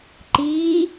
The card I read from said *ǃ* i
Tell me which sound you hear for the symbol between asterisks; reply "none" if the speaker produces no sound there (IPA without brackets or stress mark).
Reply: ǃ